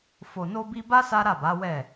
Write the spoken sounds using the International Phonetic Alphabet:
f o˨ n o˧ b i˧ b a˦ s a˦ ɾ a˦˨ b a˨˦ w ɛ˦˨

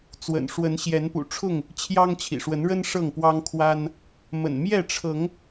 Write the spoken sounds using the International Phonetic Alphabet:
t͡s w ə̰˨˩ n ʂ w ə˨˦ n ɕ j ɛ˨˦ n p ṵ˨˩ ʈ͡ʂʰ ʊ˥˨ ŋ | t͡ɕʰ j ɑ˦ ŋ t͡ɕʰ ḭ˨˩ ʂ w ə˨˦ n ɻ ə˦ n ʂ ɤ˥˨ ŋ p w ɑ˦ ŋ kʰ w a˦ n | m ə̰˨˩ n m j ɛ˥˨ ʈ͡ʂʰ ɤ˨˦ ŋ

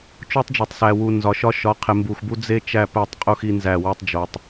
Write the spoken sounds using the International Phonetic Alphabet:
t͡ʃ o˦ tˤ d͡ʒ e˨ tˤ s æ˨ w u˨ n z ɒ˨ ʃ ɒ˦ ʃ ɒ˨˦ qʰ e˨ m b u˨ x b u˦ d͡z e˦ t͡ʃ æ˦˨ p æ˦˨ tˤ qʼ u˦ x i˦ n z æ˦˨ w o˦ tˤ d͡ʒ o˨ tˤ

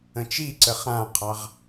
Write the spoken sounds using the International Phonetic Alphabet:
ə̃ t͡ʃ i ǀ ə χ ã qʰ ɑ ʁ

